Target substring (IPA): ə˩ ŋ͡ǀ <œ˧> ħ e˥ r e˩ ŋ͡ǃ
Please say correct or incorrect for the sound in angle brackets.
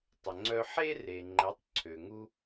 correct